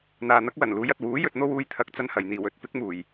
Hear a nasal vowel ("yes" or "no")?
no